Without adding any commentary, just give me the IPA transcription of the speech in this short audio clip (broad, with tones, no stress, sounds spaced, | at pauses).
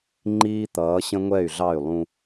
ŋ͡ǃ iː˦ t̪ ʌː˨˦ ɕ ə̃˦ ŋʷ ɛ˦˨ y̯ ɮ ɑ˦˨ y̯ lˠ ũ˦